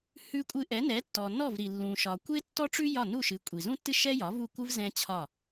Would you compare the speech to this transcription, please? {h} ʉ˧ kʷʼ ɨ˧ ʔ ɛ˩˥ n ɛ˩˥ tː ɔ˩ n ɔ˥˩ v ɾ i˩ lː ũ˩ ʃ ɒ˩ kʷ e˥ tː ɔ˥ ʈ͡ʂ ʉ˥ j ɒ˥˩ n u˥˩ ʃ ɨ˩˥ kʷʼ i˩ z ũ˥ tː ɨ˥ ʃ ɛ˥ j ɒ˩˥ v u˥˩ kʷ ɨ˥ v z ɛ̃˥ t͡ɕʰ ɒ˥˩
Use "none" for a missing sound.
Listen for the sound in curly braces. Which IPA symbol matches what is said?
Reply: h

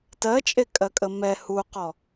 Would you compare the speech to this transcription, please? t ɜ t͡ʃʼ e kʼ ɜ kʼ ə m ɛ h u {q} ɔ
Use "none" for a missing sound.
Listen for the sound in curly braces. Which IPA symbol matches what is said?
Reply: q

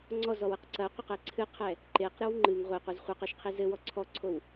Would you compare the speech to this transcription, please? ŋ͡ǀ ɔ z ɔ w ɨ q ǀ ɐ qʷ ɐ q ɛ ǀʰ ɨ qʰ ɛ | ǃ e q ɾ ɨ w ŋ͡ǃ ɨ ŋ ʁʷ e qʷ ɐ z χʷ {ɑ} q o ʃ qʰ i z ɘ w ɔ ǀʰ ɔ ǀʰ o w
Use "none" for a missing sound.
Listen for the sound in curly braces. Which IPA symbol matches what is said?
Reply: ɐ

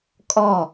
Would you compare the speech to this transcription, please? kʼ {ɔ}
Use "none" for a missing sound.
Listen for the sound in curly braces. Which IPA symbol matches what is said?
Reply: ɔ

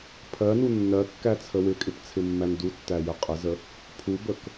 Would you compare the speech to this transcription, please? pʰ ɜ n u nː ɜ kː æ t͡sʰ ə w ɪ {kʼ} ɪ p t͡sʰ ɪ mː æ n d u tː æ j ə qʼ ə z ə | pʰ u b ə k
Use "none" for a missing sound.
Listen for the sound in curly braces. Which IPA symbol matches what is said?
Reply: kʼ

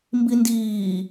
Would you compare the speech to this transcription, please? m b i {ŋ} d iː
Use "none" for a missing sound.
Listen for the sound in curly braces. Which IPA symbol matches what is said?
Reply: n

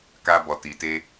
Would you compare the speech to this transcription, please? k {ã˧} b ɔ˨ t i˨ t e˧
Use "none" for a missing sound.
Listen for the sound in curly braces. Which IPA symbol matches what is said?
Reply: a˧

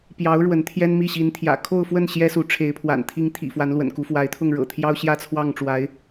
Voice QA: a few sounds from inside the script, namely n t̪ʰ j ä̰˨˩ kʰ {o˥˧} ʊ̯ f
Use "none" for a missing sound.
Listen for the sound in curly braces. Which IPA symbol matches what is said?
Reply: o˥˧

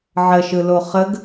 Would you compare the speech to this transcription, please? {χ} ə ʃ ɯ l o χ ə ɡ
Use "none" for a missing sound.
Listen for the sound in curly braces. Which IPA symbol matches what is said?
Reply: ʕ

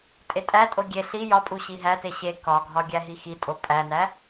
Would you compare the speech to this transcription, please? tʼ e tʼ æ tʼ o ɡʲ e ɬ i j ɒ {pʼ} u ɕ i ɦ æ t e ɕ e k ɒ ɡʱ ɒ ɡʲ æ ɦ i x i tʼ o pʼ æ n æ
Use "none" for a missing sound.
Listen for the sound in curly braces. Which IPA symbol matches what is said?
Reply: pʼ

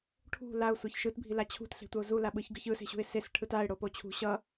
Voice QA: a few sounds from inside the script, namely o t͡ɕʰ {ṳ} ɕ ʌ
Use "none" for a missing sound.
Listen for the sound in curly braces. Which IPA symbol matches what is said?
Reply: ṳ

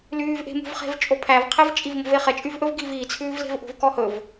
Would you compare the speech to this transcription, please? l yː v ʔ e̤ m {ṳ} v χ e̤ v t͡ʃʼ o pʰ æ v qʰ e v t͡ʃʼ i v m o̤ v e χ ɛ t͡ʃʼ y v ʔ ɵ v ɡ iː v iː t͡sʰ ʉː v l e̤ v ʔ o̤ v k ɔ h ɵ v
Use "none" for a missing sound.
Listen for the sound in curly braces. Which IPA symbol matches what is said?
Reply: ṳ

